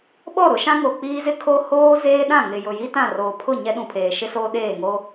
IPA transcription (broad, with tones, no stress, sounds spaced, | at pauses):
ɓ ɔ˦˨ ɾ ʊ˨˦ ʃ ã˦ ŋ o˨ k͡p iː˦ z ɪ˦ kʰ o˦ h oː˦ z eː˦ ɗ ã˦˨ ŋ ɪ˨ j ʊ˨ j i˦ t ã˦˨ r oː˨ pʰ ʊ˦˨ ɲ ɛ˦ ɗ ũ˨ pʰ eː˨ ʃ ɪ˦ s oː˦ ɗ eː˦˨ ŋ o˦